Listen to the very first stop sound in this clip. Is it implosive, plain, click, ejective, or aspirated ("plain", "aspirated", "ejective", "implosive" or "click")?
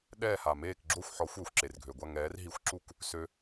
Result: implosive